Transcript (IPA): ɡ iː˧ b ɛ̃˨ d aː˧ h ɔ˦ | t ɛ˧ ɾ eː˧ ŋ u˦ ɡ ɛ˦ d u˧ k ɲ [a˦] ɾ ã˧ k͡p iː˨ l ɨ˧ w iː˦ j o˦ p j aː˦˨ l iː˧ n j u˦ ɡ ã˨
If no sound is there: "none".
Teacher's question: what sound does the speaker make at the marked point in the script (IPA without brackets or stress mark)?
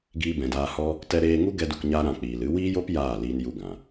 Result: a˦